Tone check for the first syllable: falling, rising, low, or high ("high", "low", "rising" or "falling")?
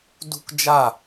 high